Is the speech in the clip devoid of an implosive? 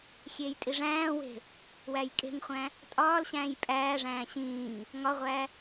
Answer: yes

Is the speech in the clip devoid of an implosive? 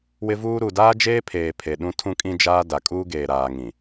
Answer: no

